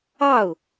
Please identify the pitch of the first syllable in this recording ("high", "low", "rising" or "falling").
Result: falling